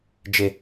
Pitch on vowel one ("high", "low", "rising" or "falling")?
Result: high